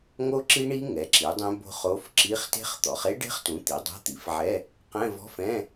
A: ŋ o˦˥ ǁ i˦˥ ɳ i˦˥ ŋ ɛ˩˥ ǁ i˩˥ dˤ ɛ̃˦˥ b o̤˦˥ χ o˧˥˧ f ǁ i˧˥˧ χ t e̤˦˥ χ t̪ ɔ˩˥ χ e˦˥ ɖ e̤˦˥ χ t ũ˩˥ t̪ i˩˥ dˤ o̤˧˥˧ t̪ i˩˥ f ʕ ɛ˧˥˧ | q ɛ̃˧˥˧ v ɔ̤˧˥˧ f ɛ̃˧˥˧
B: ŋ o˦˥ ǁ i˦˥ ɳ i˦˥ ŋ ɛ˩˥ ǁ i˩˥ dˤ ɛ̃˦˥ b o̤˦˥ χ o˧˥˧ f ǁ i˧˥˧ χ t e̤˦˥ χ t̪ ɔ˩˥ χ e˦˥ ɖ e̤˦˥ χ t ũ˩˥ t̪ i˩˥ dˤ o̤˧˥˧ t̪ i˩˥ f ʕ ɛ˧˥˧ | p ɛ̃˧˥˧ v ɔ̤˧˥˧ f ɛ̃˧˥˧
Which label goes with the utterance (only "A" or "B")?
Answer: A